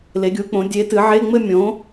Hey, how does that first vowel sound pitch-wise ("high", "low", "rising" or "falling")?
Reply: rising